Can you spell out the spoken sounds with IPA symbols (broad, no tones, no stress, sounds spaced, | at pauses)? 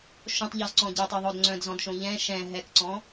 ʃ õ tˤ ʎ ɔ z ǀ ɔ̃ ɟ ɛ tˤ ɛ ðˤ o d ŋ͡ǀ œ̃ d z ɔ̃ d ʃ õ ʎ ɛ̃ ʃ ɛ̃ ɦ ɛ k ǀ ɔ̃